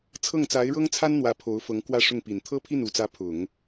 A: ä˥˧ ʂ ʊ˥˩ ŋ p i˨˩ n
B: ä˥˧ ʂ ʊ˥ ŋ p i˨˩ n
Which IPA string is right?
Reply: A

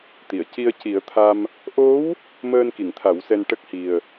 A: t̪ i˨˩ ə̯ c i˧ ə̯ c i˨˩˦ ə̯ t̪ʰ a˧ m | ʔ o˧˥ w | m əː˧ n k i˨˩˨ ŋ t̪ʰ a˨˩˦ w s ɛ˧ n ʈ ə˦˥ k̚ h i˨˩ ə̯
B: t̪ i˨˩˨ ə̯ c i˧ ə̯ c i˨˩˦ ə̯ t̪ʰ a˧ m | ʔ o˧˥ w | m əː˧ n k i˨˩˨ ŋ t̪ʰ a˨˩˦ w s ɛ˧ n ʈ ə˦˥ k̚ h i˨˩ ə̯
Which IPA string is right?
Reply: B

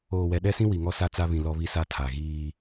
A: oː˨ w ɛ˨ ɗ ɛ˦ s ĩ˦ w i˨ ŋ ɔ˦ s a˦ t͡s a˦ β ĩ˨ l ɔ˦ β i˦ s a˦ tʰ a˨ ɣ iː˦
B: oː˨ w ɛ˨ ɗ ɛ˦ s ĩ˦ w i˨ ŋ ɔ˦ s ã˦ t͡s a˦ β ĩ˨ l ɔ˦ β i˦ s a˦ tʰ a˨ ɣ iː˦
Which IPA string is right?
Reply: A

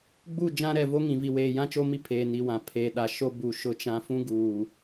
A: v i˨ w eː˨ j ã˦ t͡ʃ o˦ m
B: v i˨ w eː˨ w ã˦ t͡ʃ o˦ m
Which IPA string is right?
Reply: A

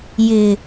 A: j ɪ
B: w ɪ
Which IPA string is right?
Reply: A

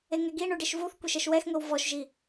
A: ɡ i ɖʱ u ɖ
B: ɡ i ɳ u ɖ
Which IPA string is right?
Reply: B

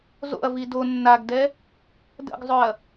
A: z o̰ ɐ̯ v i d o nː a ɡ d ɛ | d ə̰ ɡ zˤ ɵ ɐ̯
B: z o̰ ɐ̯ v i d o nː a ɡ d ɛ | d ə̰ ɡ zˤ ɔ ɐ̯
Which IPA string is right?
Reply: A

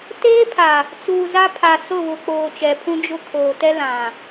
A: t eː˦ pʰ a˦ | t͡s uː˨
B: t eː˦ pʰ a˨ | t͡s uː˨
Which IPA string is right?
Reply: B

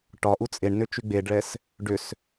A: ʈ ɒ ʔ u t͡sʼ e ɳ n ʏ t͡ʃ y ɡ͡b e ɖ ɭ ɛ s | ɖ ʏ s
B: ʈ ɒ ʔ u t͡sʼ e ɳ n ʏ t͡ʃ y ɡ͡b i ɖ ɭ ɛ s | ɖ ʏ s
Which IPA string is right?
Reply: A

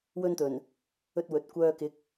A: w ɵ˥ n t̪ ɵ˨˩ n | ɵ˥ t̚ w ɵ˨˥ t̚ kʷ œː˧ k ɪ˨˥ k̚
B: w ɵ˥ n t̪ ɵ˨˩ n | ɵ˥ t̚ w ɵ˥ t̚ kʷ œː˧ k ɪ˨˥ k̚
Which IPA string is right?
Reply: A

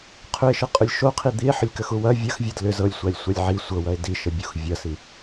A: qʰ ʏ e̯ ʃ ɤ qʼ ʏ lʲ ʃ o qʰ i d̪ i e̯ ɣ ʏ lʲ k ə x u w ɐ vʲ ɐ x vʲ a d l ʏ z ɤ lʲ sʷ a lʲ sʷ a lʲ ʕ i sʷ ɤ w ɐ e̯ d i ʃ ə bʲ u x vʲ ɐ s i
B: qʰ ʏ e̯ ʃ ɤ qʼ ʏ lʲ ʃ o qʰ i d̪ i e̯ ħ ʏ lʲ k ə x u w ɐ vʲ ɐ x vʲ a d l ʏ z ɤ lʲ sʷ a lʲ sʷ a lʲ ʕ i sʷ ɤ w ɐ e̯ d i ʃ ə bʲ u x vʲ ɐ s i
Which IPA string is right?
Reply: B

